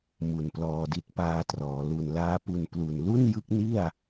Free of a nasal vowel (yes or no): yes